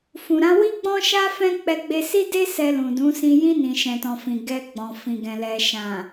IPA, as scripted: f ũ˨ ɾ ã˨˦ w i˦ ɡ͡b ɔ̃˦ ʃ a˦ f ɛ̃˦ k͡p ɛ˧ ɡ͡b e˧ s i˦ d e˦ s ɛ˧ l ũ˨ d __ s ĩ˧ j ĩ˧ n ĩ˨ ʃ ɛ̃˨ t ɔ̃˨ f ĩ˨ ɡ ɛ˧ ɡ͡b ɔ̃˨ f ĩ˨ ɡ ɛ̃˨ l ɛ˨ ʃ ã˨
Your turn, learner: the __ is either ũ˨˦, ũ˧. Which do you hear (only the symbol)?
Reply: ũ˨˦